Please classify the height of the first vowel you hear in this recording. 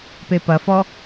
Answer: mid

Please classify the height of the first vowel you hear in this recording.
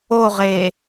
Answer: mid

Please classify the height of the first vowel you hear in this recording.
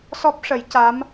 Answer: mid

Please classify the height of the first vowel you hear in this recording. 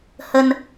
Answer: mid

